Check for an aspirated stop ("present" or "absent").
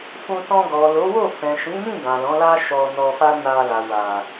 absent